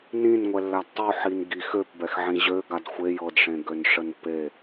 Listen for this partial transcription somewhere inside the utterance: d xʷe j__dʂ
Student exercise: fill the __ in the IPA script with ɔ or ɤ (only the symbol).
ɤ